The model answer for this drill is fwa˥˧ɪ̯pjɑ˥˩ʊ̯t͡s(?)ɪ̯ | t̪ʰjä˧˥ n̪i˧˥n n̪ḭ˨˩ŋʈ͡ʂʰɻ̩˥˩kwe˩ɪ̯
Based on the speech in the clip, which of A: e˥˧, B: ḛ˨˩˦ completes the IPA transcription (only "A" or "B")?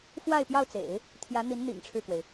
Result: B